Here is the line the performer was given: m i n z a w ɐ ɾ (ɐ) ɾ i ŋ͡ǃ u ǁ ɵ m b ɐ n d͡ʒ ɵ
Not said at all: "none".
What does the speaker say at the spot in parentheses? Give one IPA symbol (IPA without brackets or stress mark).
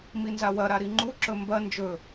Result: a